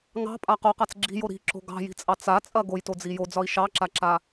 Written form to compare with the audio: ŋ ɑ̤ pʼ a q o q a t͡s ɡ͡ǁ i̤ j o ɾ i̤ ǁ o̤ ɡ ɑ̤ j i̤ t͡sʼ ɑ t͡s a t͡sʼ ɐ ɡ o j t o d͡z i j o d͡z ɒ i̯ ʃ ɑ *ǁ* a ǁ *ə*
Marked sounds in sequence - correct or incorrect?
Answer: correct, incorrect

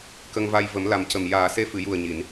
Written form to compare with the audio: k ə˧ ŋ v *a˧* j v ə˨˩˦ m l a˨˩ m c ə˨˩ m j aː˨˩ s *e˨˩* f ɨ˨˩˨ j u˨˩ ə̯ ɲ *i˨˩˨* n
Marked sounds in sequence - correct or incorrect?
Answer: correct, incorrect, correct

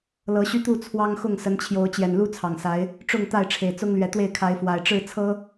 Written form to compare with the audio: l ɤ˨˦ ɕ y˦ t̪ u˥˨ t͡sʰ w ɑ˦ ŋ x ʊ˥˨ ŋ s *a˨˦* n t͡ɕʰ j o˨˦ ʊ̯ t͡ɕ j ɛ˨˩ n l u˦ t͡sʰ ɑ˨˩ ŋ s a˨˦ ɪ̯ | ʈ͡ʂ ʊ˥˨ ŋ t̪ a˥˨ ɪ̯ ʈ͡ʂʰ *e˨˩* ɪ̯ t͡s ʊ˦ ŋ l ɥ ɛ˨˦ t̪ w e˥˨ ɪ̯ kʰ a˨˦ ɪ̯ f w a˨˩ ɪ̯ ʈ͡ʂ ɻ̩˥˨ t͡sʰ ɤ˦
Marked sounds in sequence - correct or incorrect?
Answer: incorrect, correct

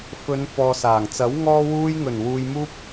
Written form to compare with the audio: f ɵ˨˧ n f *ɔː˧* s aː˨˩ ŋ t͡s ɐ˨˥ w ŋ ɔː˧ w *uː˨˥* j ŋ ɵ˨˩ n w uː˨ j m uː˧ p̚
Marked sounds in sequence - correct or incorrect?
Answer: incorrect, incorrect

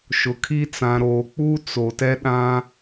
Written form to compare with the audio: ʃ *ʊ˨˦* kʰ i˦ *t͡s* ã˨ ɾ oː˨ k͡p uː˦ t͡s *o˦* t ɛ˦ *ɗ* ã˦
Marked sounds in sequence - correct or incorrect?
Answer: incorrect, correct, incorrect, correct

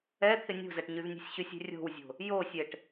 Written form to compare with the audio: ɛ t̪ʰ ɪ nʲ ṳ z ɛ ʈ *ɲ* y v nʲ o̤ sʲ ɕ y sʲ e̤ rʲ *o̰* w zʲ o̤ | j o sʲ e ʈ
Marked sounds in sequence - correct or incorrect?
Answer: correct, incorrect

